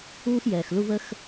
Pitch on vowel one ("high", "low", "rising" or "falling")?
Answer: high